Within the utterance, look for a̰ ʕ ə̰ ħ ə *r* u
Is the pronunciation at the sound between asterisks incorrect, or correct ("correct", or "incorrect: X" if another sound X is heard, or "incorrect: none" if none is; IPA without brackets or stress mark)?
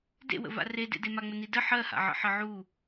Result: incorrect: ʕ